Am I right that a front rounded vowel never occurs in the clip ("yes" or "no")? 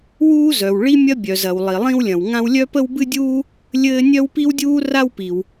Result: no